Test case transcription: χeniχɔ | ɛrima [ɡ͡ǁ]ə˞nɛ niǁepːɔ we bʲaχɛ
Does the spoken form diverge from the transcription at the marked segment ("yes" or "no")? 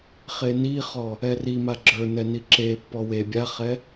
no